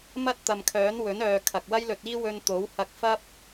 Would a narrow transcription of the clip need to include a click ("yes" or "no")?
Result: no